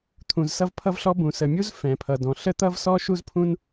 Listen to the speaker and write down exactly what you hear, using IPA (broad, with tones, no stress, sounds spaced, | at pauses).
t̪ʰ ũ˩ z s ʌ˥ v pʰ ʌ˥ v ɬ ɔ˥ b ũ˩ s ə˩ mʲ u˥ z f ɛ̃˩ pʰ ʌ˩ d ɔ̃˩ ɬ ə˥ t̪ ʌ˥ v s ɔ˥ ʃ u˥ z pʰ ũ˥ n